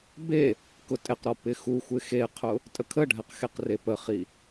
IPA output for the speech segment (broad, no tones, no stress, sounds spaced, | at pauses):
b e | k ʊ tʼ ɪ q ɾ ɔ p ɪ x u xʷ ɪ x e qʰ ʊ | tʼ ə kʰ ə ɖʱ ɛ q x e q r e p ə χ i